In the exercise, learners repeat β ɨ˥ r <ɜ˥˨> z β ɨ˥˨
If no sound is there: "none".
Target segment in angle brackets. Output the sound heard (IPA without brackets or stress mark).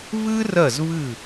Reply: ɜ˥˨